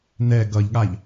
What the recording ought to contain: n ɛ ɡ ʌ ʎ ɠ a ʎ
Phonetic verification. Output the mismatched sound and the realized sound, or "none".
none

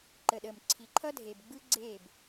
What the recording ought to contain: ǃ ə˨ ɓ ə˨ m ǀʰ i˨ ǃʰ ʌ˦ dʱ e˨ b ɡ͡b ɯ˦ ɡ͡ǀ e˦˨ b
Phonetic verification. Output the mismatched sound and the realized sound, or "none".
ɓ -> ɗ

